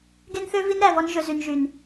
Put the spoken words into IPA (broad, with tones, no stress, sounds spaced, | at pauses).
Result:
ɡ e˦ n θ ø˦ v i˦ n ɾ æ˨ v ɔ˦ n ʒ ɵ˨ z y˨ n ʒ y˨ n